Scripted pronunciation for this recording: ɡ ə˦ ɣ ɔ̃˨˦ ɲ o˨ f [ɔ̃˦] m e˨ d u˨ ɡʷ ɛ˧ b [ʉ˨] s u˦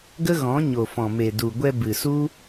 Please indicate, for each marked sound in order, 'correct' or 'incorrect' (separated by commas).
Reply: incorrect, incorrect